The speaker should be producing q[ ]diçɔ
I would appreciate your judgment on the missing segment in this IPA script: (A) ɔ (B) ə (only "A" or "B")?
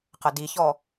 B